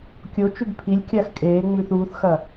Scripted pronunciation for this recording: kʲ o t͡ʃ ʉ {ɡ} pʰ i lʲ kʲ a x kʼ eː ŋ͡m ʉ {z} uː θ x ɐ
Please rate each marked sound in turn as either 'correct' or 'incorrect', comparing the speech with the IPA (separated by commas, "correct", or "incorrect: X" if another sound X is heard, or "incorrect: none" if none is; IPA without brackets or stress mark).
correct, incorrect: θ